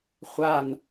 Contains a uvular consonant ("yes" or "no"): yes